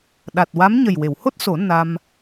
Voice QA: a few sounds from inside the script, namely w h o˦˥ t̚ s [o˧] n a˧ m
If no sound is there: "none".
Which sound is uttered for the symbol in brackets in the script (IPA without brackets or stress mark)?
o˨˩˦